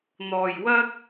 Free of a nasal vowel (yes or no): yes